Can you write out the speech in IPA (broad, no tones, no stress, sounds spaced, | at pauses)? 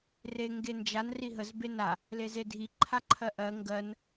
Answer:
r e ŋ ɡ e n d͡ʒ a n r i ɦ ə z b e n a | l e z e dʱ i ǃʰ a ǃʰ ɜ ʔ ɜ ŋ ɡ ɜ n